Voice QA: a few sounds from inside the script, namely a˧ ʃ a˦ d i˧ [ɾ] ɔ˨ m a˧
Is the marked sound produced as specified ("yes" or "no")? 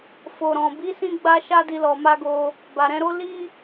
no